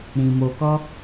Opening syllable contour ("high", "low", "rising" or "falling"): low